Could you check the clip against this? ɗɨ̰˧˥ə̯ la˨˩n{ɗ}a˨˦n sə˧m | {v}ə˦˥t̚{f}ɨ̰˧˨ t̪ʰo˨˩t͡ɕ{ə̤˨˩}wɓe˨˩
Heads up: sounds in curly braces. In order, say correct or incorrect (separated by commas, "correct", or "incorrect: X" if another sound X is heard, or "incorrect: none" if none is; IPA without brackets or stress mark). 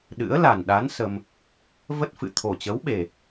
correct, correct, correct, incorrect: ə˨˦